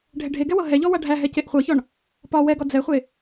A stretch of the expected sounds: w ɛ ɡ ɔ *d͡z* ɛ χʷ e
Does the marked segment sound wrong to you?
no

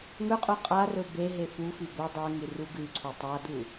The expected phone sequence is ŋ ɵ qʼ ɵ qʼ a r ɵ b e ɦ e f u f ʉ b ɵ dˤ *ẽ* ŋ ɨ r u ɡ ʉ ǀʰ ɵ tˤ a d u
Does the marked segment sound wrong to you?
yes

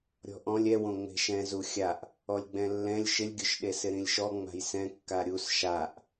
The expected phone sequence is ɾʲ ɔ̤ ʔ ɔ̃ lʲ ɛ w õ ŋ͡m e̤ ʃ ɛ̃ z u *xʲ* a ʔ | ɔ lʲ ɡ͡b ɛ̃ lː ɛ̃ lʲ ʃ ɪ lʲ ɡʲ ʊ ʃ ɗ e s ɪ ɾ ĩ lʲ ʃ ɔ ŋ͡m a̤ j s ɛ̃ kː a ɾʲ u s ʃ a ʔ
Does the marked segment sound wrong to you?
no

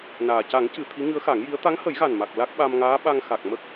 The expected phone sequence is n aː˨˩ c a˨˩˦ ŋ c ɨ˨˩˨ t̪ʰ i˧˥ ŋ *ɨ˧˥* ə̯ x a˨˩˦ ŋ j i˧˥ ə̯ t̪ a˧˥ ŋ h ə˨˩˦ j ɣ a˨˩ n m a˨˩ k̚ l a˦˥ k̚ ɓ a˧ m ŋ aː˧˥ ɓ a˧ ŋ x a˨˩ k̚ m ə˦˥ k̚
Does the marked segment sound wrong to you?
no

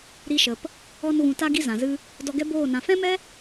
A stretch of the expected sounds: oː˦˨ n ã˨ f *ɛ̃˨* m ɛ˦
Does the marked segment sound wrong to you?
yes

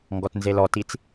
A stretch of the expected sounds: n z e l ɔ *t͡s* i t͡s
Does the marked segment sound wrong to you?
yes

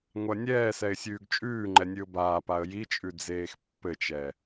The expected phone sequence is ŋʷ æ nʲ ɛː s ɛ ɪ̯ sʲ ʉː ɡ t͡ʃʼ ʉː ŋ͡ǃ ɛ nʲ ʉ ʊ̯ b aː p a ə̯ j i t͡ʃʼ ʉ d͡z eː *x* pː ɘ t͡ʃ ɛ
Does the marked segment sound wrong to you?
no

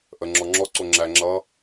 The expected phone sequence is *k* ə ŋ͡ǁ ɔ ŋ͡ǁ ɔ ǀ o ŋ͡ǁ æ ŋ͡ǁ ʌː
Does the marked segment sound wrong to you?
yes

